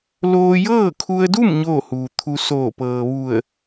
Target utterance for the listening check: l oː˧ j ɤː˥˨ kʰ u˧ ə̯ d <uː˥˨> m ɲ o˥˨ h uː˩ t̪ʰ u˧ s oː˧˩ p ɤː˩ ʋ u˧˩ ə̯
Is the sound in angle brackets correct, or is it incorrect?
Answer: incorrect